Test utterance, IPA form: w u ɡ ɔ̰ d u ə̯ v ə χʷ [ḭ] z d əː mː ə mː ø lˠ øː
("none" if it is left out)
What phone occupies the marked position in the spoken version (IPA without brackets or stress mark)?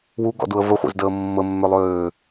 ḛ